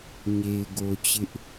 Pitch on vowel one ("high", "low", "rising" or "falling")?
low